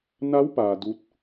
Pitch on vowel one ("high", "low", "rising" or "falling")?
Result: rising